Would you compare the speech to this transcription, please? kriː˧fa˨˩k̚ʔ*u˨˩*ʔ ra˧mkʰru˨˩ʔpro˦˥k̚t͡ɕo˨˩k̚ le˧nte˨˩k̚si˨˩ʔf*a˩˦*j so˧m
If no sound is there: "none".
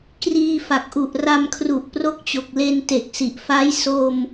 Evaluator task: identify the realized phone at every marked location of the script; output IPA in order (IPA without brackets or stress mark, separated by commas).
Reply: u˨˩, a˦˥